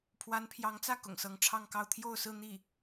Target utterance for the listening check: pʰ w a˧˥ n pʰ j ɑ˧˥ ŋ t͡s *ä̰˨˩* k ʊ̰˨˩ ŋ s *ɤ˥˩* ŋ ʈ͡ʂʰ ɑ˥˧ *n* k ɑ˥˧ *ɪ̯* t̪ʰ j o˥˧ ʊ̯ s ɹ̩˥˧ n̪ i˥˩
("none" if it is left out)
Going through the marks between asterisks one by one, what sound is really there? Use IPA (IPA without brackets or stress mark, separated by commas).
ä˥˩, ɤ˧˥, ŋ, ʊ̯